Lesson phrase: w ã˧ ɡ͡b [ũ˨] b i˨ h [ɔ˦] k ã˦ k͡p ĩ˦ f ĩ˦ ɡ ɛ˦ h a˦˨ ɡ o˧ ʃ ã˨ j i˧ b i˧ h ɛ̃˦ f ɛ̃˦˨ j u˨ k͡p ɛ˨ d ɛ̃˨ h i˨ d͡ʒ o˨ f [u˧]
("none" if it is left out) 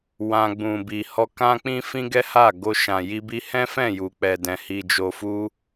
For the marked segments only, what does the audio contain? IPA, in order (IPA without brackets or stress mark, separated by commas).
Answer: ũ˨, ɔ˧, u˧